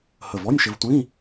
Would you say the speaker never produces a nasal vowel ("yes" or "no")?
no